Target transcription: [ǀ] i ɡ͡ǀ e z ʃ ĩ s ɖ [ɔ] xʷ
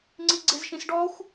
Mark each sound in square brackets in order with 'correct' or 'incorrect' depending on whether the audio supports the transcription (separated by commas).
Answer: incorrect, correct